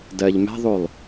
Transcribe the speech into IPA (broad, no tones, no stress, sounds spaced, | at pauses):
d ɜ ʎ m ɛ̤ ðˤ u lˠ